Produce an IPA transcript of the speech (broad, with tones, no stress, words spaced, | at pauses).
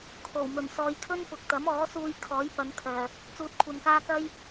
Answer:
kʰo˨˩wmɵ˨˩n sɔː˨jkʰɵ˥n pʊ˨k̚t̪ɐ˨˥mɔː˨˥ suː˧j kʰɔː˨˥jpɐ˨˧n kʰœː˨˩ | t͡suː˨t̚kʷʰɐ˨nkaː˧ kɐ˥j